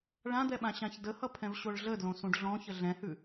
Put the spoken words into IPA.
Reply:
ɭ ã d̪ ɛ ɓ ã ɕ ã ç d ə h ʌ pʰ ɛ̃ v ɕ o ɭ ɮ ə d l õ s ũ ɖ ɮ ɔ̃ ç ə ɮ ɛ̃ h ʉ

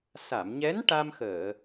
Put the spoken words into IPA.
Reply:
s a˨˩˨ m ɲ ɛ˧˥ n ʈ a˧ m x əː˨˩˨

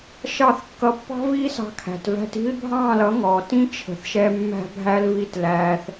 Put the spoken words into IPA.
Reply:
ʃ ɑ˦˨ θ kː ʌ˧ pː ɑ̤˦ v iː˦ s ɑ̤˧ kʰ æ̤˨ t v æ̤˧ t i̤˦ l bʱ ɑ̃ː˦˨ l ʌ˨˦ ŋ ɔː˨ t ĩ˦ t͡ʃʰ ə̤˨ θ ʃ ɛ˧ mː æ̤˧ bʱ æ˧ l v i˧ t l æː˧ θ

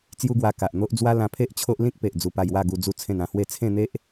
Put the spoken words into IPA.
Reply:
t͡s j u˦ ɡ w a˧ k a˨ ʔ n̪ o˦ ʔ d͡z w a˦ l ã˧ pʰ e˦ ʔ t͡ɕʰ o˦ ʔ l ĩ˦ k̚ p e˨ ʔ d͡z u˧ p a˧ j w a˥˧ ɡ u˧ d͡z u˥˧ t͡sʰ ẽ˥˧ n ã˧ h w e˥˧ t͡sʰ ẽ˥˧ n̪ e˦ ʔ

